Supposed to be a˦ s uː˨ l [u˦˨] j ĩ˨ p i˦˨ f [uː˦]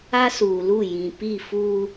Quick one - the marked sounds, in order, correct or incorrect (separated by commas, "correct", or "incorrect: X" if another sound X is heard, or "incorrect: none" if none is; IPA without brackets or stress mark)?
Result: correct, correct